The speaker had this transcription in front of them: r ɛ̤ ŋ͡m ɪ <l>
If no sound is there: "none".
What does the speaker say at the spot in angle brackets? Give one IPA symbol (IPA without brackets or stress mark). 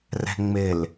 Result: l